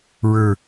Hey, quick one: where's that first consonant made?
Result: retroflex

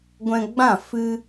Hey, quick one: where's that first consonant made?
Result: velum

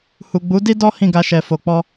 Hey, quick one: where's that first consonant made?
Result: throat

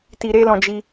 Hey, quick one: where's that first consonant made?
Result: tongue tip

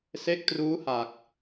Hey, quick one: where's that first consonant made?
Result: tongue tip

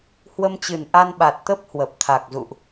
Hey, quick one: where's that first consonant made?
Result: throat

